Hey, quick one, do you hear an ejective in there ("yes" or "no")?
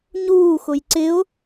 no